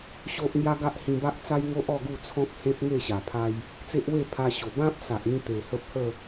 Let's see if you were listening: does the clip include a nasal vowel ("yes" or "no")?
yes